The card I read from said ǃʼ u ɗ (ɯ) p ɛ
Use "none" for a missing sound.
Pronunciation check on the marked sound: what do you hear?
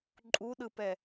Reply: ɯ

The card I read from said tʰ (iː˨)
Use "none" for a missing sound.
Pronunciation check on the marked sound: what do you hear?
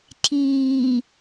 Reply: iː˨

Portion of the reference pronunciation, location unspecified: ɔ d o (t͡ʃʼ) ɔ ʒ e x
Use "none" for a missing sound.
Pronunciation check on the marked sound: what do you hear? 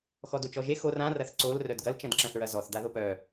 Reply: t͡ʃ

